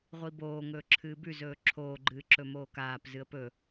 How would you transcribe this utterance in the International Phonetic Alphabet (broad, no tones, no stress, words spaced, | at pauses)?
ʁʷiboː ŋɵːǁʰɨːbʉ zɵːǁʰoːɡ͡ǃɨːǁɵ moːkaːp zɨə̯pɵ